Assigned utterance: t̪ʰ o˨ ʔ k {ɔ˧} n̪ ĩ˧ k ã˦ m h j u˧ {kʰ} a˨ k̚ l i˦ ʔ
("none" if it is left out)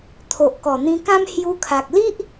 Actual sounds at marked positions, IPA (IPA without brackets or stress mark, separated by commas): ɔ˨˩, kʰ